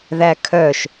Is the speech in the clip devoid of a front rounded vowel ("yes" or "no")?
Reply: no